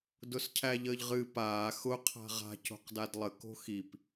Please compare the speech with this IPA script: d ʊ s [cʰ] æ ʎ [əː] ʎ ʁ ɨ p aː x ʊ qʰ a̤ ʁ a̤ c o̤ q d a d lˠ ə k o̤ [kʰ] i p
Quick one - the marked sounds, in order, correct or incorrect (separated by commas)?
correct, correct, incorrect